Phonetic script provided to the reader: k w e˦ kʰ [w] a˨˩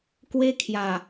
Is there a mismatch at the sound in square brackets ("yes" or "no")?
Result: yes